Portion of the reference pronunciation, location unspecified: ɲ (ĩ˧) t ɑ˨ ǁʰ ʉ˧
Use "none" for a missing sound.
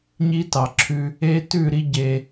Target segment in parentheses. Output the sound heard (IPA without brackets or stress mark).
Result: i˧